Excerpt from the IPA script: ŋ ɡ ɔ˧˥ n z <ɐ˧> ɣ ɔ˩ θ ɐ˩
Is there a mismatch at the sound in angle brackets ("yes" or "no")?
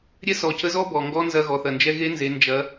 no